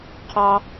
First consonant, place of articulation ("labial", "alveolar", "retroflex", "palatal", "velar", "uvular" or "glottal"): uvular